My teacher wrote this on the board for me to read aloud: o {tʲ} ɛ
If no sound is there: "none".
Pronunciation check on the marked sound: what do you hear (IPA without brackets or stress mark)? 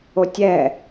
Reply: tʲ